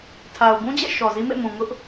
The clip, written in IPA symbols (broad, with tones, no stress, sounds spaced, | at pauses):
tʰ a˨ ʊ̯ b ũ˦ d͡ʑ ɛ̰˦˨ ʃ ɔ˨ z i˦ m ḛ˦˨ m ũ˨ ŋ ʊ˦ ʔ